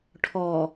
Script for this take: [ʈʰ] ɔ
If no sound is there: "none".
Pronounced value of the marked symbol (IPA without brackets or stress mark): ʈʰ